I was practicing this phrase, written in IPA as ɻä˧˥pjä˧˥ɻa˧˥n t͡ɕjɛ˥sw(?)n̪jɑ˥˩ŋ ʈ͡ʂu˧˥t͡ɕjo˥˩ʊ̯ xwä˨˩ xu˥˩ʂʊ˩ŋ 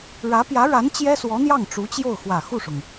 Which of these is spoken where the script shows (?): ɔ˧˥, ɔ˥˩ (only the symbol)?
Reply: ɔ˧˥